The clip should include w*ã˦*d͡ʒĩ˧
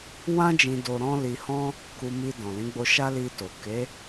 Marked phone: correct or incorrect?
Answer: correct